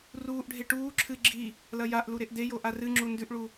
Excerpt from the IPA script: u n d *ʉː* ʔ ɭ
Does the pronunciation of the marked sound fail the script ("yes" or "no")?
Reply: yes